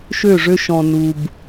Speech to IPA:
ʃø˦˨ ʐø˦ʃɔ̃˨ nu˨b

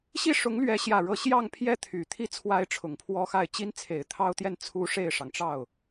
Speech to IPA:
ɕi˥˩ʂʊ˧˥ŋlɥɛ˧˥ ɕjä˥˧ɻɤ˥˧ ɕjɑ˥˧ŋpʰjɛ˥˩t̪ʰy˨˩t̪ʰi˥˩ t͡sʰwa˥ɪ̯ʈ͡ʂʰʊ˨˩ŋpʰwɔ˥xa˥˩ɪ̯ t͡ɕi˥nt͡sʰe˨˩ɪ̯t̪ʰɑ˥ʊ̯t̪jɛ˥˩n t͡sʰu˥ ʂe˥˩ɪ̯ʂɑ˩ŋʈ͡ʂɑ˥˩ʊ̯

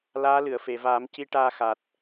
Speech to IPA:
laː˧˥lɨ˨˩˨ə̯fe˨˩˨vaː˨˩˦m ci˧ʈaː˧xa˨˩t̚

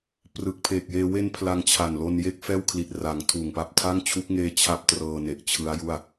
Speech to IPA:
prɯ˨˩k̚pʰeː˨˩k̚jeː˧ we˧n pʰla˧ŋt͡ɕʰa˨˩nlo˧nje˥˩k̚ fɛː˥˩wkʰli˨˩t̚ra˩˦ŋ tʰuː˨˩ŋpa˦˥p̚ tʰa˥˩ŋt͡ɕʰu˦˥k̚ŋeː˦˥ t͡ɕʰa˦˥p̚trɤː˧ ne˨˩ʔt͡ɕʰɯ˦˥a̯ju˥˩a̯

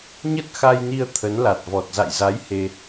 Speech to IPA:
ɲə˦˥t̚xa˧jni˧ə̯ t̪ʰə˨˦nla˨˩t̚vɔ˨˩t̚ za̰˧˨jza˨˦j he˧

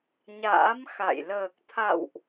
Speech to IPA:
ɲa̰ː˧˥mxa̰˧˨j ləː˨˩k̚t̪ʰa̰˧˨wʔ

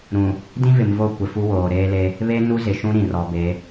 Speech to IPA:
ɾũ˨ | dĩ˦vɪ˨mvo˦˨ kʷɪ˨fu˦ woː˨ɾeː˦le˦ | βe˦ nu˦zɪ˨ ʃũ˦ɾĩ˨rɔ˨be˨˦

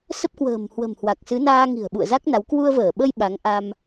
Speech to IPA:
sə˦˥p̚kwə̤ː˨˩m hwə̤˨˩mhwa˨˩k̚sɨ˨˦naː˧ ŋi̤˨˩ə̯ɓṵ˧˨ə̯za˦˥k̚na˨˦w kwu˧ə̯vəː˧˩ɓə˧j ɓa˨˦ŋʔa˧m

